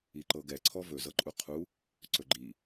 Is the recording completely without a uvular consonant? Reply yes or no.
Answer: no